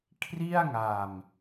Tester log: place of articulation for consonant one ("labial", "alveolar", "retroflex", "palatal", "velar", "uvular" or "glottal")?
velar